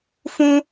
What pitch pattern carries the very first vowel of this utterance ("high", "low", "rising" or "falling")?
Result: high